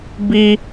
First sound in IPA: b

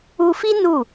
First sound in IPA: u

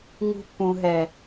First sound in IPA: ŋ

